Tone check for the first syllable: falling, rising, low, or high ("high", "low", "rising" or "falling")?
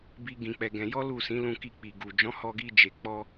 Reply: high